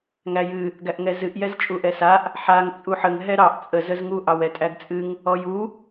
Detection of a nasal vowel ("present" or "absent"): absent